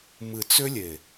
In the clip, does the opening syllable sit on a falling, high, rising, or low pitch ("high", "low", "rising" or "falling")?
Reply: low